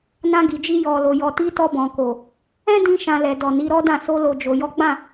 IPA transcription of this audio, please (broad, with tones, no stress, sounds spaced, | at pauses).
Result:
n ã˧ ɡ i˨ d͡ʒ i˧ j ɔ˨ l o˨ j ɔ˨ t i˧ t ɔ˧ b ɔ̃˨ k o˨ | ɛ̃˦ d ĩ˧ ʃ ã˨ l ɛ˨ d ɔ˨ n i˨˦ ɾ ɔ˦ d ã˦˨ s o˧ l o˨ d͡ʒ o˨ j ɔ˨˦ ɡ͡b ã˦˨